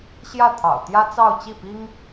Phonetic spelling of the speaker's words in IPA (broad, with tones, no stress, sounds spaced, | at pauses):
ɕ j ä˥˩ t̪ʰ ɑ̰˨˩ ʊ̯ t̪ j ä˥ t͡s ɑ˥˧ ʊ̯ t͡ɕ i˥˩ p i˥ ŋ